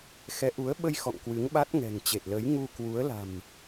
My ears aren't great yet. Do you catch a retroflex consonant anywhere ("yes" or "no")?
no